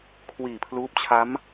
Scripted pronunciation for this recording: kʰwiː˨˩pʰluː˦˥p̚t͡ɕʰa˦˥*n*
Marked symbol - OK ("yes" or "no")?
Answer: no